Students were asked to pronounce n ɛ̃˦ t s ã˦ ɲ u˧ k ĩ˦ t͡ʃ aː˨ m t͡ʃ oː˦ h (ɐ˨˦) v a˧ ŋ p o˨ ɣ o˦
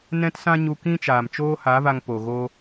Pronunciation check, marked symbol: incorrect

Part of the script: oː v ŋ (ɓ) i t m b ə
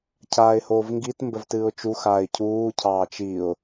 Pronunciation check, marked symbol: incorrect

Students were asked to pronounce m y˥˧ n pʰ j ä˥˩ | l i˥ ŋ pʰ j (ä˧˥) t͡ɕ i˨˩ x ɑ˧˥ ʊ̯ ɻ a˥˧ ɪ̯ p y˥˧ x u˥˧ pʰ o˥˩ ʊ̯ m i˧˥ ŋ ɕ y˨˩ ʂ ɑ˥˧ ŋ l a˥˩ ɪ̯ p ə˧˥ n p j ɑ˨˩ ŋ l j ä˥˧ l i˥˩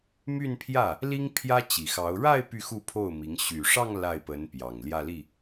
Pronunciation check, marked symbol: incorrect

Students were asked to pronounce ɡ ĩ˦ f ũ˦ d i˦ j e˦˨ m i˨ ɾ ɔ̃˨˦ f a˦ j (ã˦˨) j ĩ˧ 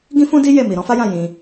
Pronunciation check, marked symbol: correct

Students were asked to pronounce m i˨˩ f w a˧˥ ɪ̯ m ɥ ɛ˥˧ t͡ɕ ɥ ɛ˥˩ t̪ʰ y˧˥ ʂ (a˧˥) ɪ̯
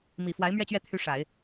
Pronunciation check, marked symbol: incorrect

